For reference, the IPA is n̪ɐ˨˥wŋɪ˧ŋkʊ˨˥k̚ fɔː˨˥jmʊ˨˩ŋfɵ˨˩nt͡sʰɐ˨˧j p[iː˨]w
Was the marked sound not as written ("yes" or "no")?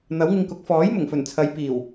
yes